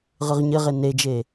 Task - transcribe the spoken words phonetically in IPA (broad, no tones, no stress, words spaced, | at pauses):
ʁɯʁɲɘʁe ned͡ʒe